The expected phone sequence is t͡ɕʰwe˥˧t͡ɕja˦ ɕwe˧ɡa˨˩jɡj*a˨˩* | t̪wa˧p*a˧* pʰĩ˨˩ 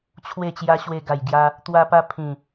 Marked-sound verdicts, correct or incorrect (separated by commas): incorrect, correct